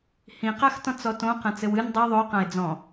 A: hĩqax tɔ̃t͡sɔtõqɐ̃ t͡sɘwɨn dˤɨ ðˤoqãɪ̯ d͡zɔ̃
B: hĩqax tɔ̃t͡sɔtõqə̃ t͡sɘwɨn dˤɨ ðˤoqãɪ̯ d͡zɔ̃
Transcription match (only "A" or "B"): A